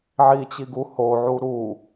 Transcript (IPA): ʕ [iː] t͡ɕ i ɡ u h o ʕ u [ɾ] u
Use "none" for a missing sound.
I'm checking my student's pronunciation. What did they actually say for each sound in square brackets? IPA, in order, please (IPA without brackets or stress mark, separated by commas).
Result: i, ɾ